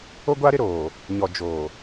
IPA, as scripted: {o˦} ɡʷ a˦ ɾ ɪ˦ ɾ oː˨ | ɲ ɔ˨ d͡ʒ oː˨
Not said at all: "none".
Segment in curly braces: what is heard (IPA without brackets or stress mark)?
o˦